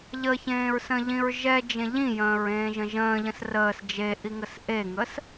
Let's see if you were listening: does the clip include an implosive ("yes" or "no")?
no